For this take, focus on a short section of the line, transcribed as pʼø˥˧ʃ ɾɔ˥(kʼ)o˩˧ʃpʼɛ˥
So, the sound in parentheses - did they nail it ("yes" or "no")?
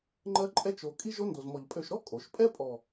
yes